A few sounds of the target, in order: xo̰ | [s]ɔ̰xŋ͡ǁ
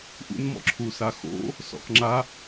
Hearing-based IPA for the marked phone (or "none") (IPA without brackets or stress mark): s